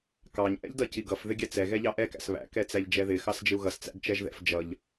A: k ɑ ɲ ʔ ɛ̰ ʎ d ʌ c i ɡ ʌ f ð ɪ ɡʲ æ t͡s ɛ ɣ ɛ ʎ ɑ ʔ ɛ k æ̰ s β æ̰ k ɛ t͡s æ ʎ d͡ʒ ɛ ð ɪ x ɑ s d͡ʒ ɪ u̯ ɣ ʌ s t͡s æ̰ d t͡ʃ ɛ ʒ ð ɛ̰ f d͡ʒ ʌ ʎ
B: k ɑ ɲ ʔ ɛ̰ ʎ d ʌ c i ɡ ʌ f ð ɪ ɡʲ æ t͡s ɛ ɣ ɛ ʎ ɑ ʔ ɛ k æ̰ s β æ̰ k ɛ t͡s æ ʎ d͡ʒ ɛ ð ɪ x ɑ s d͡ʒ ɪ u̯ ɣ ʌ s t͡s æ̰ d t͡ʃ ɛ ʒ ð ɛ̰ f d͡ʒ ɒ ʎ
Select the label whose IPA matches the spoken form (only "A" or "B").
A